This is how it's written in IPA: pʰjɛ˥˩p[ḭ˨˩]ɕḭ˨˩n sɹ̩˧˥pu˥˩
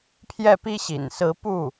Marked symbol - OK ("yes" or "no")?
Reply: no